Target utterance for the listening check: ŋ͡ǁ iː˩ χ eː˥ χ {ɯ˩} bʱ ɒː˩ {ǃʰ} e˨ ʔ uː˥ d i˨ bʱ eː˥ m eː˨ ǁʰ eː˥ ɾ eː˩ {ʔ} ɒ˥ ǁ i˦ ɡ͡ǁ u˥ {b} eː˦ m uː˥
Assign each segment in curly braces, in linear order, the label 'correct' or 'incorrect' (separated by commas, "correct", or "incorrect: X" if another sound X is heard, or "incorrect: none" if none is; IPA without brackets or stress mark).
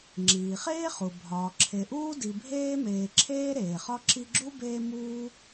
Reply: incorrect: u˩, incorrect: ǁʰ, incorrect: χ, correct